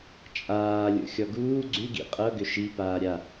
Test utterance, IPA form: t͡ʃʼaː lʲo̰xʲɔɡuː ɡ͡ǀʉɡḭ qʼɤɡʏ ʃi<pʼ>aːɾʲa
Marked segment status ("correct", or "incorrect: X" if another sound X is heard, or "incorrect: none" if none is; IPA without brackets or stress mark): incorrect: p